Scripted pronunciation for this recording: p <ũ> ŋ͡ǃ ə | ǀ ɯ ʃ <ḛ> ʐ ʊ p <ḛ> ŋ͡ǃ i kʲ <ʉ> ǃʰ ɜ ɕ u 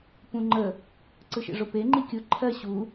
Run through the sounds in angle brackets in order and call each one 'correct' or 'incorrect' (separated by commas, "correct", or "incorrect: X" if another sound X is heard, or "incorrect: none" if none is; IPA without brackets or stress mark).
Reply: correct, correct, incorrect: e, incorrect: ʊ